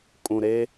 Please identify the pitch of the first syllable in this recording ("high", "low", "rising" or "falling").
low